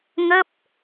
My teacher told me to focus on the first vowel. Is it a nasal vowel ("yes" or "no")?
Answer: no